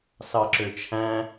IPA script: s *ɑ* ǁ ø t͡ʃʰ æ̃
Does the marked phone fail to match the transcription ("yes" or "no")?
no